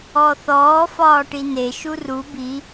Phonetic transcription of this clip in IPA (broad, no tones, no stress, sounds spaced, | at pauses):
ɔ θ ɔː f ɒː ʈ i n e ʃ u r u b i